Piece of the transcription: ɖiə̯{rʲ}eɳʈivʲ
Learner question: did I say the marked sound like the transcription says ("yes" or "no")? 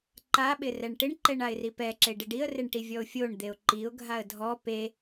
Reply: no